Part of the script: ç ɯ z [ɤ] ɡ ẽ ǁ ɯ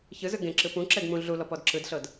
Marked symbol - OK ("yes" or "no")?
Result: no